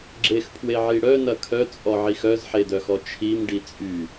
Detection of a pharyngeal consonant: present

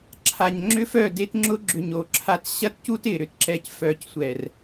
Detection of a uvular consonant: absent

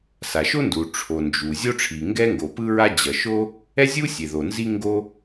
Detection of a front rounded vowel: absent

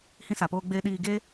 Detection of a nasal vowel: present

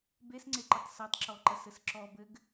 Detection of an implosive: absent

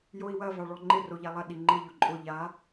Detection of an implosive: present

